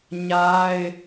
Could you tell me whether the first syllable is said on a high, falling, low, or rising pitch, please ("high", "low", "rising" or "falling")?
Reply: high